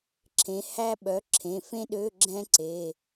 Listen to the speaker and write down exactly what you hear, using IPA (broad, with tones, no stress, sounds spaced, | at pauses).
ǁʰ ẽ˩˥ h æ˥ ɓ œ˩˥ ǁʰ ẽ˩˧˩ f ẽ˥ ɗ ø˧˥˧ ɡ͡ǁ ɛ̃˥ ǀ e˩˧˩